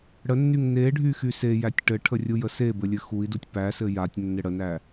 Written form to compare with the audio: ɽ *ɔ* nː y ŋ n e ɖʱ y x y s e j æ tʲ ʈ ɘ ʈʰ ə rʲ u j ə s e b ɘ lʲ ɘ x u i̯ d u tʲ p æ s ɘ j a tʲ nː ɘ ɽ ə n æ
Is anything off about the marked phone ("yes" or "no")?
yes